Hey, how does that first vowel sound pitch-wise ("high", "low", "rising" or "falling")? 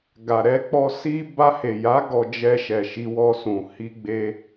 low